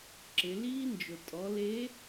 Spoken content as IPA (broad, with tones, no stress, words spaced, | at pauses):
ǁɪ˩˧liː˥ nd͡ʒʊ˩tʼɔ˩˧le˧˥